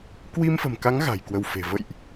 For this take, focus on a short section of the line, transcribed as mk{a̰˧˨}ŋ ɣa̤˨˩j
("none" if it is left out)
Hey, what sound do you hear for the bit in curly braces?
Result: a˨˦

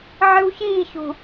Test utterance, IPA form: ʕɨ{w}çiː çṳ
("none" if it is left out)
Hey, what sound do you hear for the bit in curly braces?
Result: w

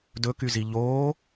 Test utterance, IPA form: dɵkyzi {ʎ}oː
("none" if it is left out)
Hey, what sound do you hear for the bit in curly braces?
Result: ʎ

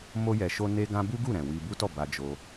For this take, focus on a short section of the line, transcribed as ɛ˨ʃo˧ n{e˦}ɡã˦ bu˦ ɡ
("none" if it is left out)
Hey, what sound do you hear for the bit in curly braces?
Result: e˦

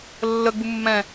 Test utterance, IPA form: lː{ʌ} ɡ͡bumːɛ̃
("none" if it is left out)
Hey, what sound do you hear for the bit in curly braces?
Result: ə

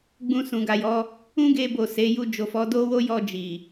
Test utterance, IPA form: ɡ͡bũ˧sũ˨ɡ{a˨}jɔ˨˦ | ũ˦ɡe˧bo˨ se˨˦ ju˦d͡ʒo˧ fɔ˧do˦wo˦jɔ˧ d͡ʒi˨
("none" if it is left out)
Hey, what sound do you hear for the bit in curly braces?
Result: a˨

